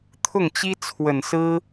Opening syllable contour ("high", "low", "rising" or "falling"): falling